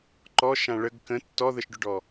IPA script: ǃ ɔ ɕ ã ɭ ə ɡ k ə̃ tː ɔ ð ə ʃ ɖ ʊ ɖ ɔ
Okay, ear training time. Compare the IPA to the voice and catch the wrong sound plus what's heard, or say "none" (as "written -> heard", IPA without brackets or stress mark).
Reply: ɕ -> ʃ